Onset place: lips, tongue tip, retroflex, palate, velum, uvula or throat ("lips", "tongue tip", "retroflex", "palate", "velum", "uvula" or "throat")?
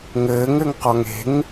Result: velum